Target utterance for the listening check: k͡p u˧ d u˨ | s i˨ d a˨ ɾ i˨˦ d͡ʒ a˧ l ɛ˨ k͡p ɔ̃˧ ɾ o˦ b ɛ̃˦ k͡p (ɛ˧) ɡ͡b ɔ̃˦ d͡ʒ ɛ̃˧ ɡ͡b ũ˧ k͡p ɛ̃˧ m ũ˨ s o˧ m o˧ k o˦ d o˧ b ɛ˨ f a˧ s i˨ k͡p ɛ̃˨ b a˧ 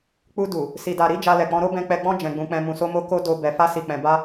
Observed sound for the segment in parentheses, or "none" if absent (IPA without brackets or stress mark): ɛ˧